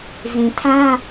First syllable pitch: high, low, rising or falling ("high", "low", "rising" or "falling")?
low